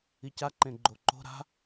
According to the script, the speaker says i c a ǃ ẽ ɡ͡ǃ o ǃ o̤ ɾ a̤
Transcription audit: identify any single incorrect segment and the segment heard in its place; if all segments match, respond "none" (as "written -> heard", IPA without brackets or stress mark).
none